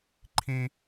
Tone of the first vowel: high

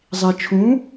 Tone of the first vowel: low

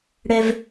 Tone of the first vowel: high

